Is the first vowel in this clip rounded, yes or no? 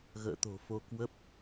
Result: no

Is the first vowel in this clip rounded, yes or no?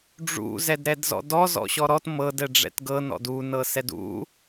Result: yes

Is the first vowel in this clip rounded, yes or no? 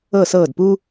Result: no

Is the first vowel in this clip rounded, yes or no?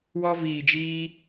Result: yes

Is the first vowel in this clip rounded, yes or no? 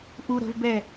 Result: yes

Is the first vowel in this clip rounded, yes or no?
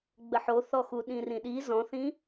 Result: no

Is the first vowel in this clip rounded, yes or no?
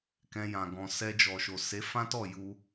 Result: no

